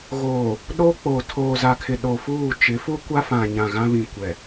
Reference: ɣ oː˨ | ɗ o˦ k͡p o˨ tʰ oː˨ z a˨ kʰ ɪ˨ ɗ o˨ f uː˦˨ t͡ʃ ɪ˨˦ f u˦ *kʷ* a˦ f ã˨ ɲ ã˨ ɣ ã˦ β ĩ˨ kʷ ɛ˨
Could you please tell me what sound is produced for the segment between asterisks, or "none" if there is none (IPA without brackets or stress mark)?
kʷ